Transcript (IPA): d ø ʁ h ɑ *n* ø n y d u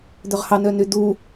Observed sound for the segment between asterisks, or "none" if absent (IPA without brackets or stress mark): n